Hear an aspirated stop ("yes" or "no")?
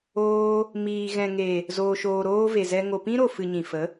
no